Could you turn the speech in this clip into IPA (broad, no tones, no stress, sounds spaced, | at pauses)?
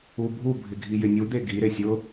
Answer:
u bʱ u bʱ ɪ ɡʱ i j ɪ nʲ u d̪ e ɡ i ɾ e sʲ ʊ